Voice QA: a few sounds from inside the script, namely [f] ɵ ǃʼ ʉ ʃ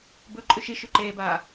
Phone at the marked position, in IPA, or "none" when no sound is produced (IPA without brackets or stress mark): b